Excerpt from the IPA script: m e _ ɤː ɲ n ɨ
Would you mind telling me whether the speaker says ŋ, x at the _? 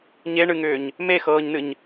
x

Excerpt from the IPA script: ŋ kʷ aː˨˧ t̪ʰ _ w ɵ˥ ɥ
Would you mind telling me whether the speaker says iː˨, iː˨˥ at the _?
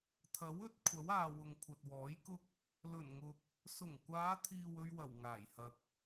iː˨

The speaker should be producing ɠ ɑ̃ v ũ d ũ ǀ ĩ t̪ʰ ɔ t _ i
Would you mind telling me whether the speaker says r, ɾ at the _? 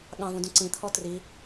r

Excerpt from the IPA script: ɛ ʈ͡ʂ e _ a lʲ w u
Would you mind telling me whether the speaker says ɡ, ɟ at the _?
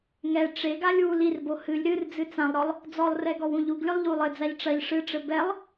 ɡ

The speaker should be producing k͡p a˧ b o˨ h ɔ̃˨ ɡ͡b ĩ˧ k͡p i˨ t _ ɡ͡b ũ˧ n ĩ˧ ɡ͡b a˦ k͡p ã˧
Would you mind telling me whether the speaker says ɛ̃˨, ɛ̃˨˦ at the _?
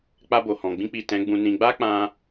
ɛ̃˨˦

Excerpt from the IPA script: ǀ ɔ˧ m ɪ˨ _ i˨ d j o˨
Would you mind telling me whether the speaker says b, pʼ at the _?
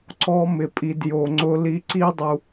pʼ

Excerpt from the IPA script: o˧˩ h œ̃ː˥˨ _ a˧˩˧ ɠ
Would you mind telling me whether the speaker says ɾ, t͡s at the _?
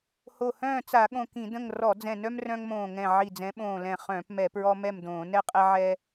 t͡s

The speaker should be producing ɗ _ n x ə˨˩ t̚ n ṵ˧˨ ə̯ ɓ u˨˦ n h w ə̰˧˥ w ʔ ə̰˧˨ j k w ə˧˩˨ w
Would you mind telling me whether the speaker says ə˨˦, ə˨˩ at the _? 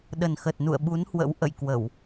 ə˨˩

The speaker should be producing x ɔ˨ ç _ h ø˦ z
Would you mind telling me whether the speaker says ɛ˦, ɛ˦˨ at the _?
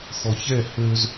ɛ˦˨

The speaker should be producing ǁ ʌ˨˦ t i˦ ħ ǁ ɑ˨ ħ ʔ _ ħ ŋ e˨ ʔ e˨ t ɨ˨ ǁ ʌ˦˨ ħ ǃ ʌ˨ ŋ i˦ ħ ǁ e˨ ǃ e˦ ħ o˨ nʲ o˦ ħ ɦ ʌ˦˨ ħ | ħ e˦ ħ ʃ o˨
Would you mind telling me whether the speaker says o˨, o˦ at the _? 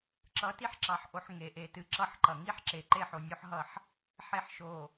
o˨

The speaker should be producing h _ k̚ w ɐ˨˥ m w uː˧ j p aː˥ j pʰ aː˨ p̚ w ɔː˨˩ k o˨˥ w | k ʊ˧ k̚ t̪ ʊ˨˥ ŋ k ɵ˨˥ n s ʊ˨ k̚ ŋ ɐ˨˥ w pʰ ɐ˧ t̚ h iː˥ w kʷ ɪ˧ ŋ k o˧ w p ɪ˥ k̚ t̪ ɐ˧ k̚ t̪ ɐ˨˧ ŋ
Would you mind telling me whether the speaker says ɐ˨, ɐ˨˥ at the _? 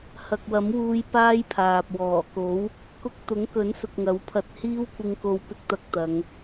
ɐ˨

